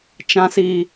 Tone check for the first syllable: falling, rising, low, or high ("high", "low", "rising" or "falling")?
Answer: low